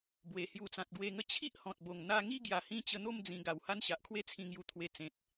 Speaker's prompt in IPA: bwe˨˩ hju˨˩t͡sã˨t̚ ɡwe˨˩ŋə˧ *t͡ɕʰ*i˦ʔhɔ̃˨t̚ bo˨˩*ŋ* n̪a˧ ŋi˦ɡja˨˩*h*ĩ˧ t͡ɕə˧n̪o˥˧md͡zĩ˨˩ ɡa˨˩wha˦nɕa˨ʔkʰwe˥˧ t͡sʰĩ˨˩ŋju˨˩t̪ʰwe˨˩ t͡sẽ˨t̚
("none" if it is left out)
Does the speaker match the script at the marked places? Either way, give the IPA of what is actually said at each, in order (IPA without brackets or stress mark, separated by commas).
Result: t͡ɕʰ, ŋ, h